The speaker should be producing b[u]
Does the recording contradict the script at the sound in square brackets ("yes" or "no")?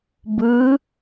yes